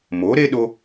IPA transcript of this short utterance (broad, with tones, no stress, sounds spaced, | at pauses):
m o˩˥ ɾ e˥ ɗ o˧